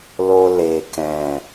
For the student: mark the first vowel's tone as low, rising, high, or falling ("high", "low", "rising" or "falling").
low